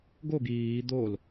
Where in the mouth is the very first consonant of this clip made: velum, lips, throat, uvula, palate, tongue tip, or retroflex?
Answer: velum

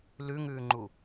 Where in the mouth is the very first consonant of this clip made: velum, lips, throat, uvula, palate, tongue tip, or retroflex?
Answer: tongue tip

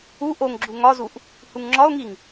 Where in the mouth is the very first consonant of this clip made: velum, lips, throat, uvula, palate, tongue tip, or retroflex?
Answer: throat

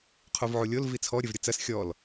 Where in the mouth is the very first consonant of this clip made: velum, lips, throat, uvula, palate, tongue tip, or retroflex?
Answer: uvula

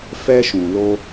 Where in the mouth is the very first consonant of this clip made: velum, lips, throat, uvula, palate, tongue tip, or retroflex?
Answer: lips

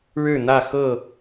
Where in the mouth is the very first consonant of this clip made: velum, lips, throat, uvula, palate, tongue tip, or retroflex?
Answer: retroflex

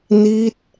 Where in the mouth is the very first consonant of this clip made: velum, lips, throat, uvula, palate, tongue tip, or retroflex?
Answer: tongue tip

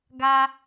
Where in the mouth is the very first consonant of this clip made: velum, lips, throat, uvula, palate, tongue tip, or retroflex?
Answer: velum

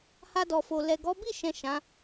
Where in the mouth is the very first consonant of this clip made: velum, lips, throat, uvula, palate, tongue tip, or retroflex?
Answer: throat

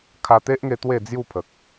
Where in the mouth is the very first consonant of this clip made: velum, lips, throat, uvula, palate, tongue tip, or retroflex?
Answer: velum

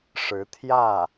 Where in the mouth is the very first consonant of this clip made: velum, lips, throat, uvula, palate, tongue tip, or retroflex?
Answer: retroflex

